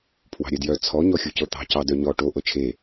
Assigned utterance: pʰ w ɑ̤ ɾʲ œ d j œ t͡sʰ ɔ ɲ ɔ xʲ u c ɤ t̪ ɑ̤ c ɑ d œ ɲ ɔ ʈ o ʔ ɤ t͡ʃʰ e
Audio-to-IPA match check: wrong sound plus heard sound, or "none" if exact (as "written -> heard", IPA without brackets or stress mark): none